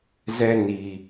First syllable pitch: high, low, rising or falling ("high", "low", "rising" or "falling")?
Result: high